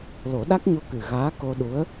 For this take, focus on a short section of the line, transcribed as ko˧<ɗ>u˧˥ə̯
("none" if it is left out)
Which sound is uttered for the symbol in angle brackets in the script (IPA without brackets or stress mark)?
ɗ